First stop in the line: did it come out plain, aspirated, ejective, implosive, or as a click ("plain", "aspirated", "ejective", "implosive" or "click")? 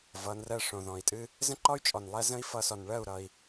ejective